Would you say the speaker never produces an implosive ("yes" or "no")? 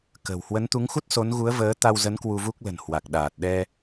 no